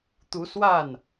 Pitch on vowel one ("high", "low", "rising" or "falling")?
rising